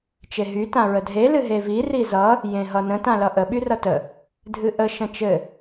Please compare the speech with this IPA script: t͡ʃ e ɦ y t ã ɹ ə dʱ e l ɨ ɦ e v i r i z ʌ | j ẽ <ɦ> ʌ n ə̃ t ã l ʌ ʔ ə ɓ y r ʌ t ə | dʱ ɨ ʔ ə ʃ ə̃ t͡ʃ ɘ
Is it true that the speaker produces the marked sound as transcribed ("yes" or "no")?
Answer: yes